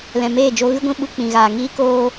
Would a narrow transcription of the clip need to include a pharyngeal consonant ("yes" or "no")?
no